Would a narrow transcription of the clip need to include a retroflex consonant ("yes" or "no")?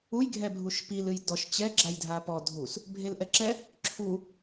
no